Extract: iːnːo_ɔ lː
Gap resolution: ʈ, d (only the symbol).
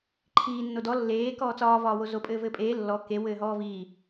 d